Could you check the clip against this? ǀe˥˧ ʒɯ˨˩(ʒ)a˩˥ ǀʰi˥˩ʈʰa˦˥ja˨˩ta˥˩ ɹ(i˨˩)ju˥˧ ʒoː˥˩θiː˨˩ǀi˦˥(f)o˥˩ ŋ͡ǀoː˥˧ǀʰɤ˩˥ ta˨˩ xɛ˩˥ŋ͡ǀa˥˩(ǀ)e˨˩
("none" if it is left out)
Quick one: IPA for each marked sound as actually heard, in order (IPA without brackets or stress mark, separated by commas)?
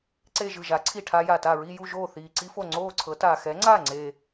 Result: ʒ, i˥˧, f, ŋ͡ǀ